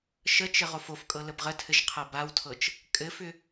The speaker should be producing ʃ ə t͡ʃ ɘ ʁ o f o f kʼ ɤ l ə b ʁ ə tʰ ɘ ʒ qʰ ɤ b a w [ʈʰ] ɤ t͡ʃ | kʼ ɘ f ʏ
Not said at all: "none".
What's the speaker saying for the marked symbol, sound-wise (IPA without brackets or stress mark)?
tʰ